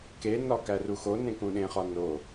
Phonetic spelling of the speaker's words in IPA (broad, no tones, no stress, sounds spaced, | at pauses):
k e n ɒ k æ r u x o n ẽ k ũ ɗ ẽ χ ɒ n o